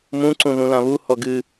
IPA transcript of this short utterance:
m ũ ǀ ũ ð ũ l ã β u h ɔ ɡ ɨ

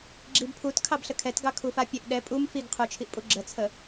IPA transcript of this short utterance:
ɡ͡ǁ i b pʰ u t kʰ ɑ b ɬ ə kʰ ɛ t ɡ ɑ kʰ u f a pʲ e ʔ ɗ ɛ pʼ u m f i ɡ qʰ u t͡ʃʰ i ʔ pʼ u ɡ͡ǁ ə t͡sʰ ə

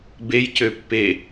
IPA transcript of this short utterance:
b e j c ø pː e

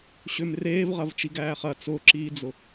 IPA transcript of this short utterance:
ɕ ʏ m r eː v ʁ ɐ v t͡ʃ i ɡ æː χ ɐ t͡s ʊ ǁ iː d͡z ʊ

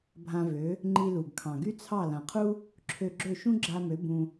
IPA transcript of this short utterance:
bʱ ã˧ v ø˩˥ | ŋ͡ǃ i˧ l u˩ ɡ kʰ ɑ̃˩ ɡ y˥ t͡sʰ ɑ˥˩ l ã˩ qʰ u˥ | ǁʰ ø˧ ɡ͡ǁ ø˥˩ ʃ ũ˥ ɡ͡ǁ a˧ m ø˩˥ b ũ˧

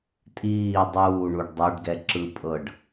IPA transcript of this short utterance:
tʼ iː dˤ uː ɳ u ɖ dˤ ɤ ɖ ɡ ɛ ǁ ɯ pʼ ɤ ɖ

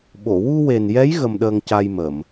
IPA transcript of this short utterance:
ɓ o˨˩˨ w u˧ w e˨˩ n j ɛ˧˥ j ɣ ə˧ m ɗ əː˧ ŋ c a˧ j m əː˨˩˨ m

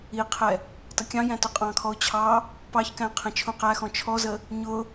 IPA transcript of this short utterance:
i qʰ ɛ | t ʌ kʲ ɑ̃ j æ̃ t ʊ qʼ ɑ̃ kʰ ɔ ʊ̯ t͡ɕʰ ɑ | p ɑ ç k æ̃ qʰ ɛ̃ t͡ʃʰ ũ q æ x ɔ̃ t͡ʃʰ ɔ z ə | ɲ ʊ

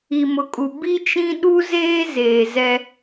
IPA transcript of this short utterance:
i˨ m ʊ˨ kʼ u˨ b i˦ t͡ʃ ĩ˦ ɗ u˦ z eː˦ z eː˨ z ɛ˦

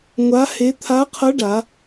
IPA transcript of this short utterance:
ŋʷ a˧˥ h e˧˥ t̪ʰ a˧˥ qʰ ʌ˧˥ ɖ a˩˧

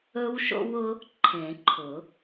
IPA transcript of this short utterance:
ɵ˦˥ w ʃ o̰˦˥ w ʊ˦˥ | ǃʰ ẽ˨˩˦ ǃʰ ʊ˨˩˦

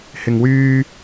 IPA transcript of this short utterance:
h ɪ˨ ŋ w yː˧

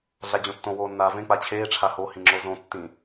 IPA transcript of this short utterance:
ɮ a d͡ʑ õ tː õ w oː nː aː v ẽ k͡p a t͡ɕʰ eː ʈ͡ʂʰ a h o h ĩ ŋ͡ǁ o z õ tː ĩ

